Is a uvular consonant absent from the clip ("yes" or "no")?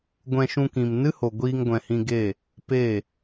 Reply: yes